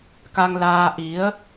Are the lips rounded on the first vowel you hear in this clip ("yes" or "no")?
no